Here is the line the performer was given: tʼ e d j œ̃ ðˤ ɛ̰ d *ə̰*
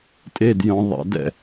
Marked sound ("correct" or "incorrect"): incorrect